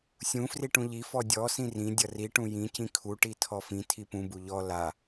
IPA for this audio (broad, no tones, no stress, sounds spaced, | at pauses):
sʲ ũ f r i ʈ ũ ʎ i f ɔ dʲ ɔ s ĩ r ĩ dʲ ʌ r i ʈ ũ j ĩ c ĩ kʰ u ʈ i tʰ ɔ f ĩ tʰ i p ũ b u ʎ ɔ l a